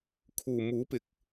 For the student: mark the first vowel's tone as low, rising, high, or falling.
low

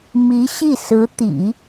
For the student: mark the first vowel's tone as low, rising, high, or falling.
rising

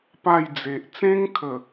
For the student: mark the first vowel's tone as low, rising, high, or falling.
falling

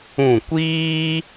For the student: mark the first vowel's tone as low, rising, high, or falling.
falling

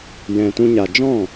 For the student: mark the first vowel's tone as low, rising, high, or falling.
low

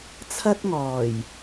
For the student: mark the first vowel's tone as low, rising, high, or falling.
high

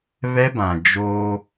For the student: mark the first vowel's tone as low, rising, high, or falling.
high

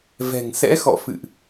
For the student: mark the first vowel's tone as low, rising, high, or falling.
low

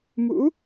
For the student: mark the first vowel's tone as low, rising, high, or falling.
rising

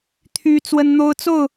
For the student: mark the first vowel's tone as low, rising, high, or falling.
high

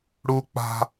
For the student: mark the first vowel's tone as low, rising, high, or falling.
high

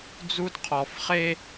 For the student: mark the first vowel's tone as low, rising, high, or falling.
high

